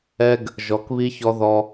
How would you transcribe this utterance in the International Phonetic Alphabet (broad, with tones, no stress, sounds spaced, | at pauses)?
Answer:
ɛ˦ ɡ | ʒ ɔ˨˦ k β i˦ ç ɔ˦ ð ɔ˦